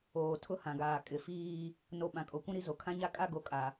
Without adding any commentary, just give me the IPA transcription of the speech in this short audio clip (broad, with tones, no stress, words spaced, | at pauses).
oː˨ tʰʊ˦hã˨ɡaː˨ kʼɪ˨ fiː˦ | no˨ ɓã˨kʼo˨kʷũ˦ ɾi˦zo˨ kʰã˦ɲa˦ kʼa˦ɡo˨kʼa˨